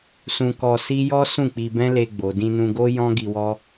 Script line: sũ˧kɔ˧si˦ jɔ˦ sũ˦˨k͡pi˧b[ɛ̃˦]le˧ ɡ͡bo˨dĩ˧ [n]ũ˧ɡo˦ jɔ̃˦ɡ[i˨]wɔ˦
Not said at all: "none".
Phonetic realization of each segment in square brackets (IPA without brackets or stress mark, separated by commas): ɛ̃˦, n, i˧